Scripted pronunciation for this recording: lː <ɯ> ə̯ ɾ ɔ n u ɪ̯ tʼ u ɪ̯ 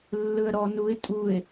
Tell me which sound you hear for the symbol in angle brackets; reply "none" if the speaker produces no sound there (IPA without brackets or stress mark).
ɯ